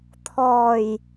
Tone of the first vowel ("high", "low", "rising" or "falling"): low